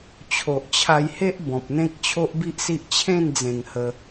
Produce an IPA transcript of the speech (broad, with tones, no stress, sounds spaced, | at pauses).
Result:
t͡ɕʰ o˨ ʔ t͡ɕʰ a˧ j h e˦ ʔ b ɔ̃˨ p̚ n̪ ẽ˦ k̚ t͡ɕʰ o˦ ʔ b i˦ ʔ s i˦ ʔ t͡ɕʰ ẽ˥˧ n d͡z ẽ˨˩ ŋ h ə˧